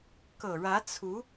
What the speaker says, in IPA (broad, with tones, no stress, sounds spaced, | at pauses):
k ɤ˨˩ ɻ ä˧˥ t͡sʰ u˧˥